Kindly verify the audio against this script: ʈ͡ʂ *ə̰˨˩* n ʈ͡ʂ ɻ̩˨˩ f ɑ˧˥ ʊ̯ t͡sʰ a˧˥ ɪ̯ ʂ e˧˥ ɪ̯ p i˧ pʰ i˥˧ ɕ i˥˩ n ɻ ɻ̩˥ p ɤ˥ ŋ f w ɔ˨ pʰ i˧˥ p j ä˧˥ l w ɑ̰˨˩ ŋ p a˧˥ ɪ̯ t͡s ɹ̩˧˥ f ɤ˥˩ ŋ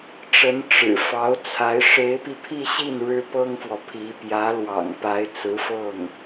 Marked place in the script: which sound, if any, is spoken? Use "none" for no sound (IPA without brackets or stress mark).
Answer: ə˧˥